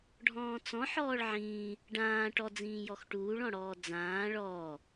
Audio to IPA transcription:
ɖʱ ɔ̃ː t͡s ɔ̃ ħ ɔː ɭ ʕ ĩː | ɖ ãː ʈ ɔ d͡z ĩː j ɔ x ʈ uː ɭ ɔ̃ ɽ ɔː d͡z ãː ɭ ɔː

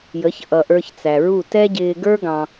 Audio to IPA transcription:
j ə˨˦ ç ʔ ʌ˨ ʔ ə˞˧ ç t͡s æ˨ ɹ u˦˨ t ɛ˦ ɟ ɪː˧ ɡ ə˞˦ ɡ ɑ̃˧

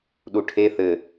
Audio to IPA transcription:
ɗ u ʈʰ e θ ɘ

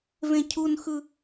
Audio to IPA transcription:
v ẽ cʰ u n x ɯ

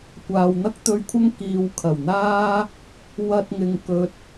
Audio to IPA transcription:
kʷ aː˨ w n̪ ɐ˥ k̚ t̪ ɵ˧ ɥ kʷʰ ɐ˥ ŋ k iː˨ w kʰ ɐ˨˩ w n̪ aː˥ | w ɐ˧ t̚ ŋ ɪ˨ ŋ k ɵ˨ t̚

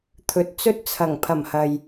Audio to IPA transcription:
t̪ʰ ɵ˨ t̚ t͡s ɵ˥ t̚ t͡sʰ ɐ˨˩ ŋ pʰ ɐ˨˩ m h ɐ˨ j

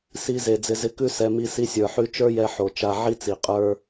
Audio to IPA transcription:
s i˧ z e˨ d͡z ɪ˧ z ɪ˧ k ʉ˦ s ɛ˧ m i˧ s i˧ sʲ ə˞˨ ħ ʉ˧ t͡ʃ ə˞˦ j ɛ˧ ħ o˨ t͡ʃ a˧ ʕ i˦ t͡s i˨ qʼ ə˞˦

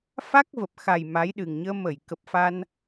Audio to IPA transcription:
f a˦˥ k̚ v ə˨˩ p̚ x a˨˩ j m a˨˦ j ɗ ɨ˨˩ ŋ ɲ əː˧ m ə˧˩ j k ə˨˩ p̚ f a˧ n

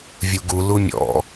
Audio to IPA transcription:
vʲ u ɡ u l u mʲ ɔ̰

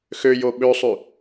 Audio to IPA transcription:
x ø j o ɓ ø sˤ ʉ

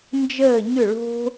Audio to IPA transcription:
n d͡ʒ əː˦˨ ɲ ʏ˦˨ ɭ o̤˦

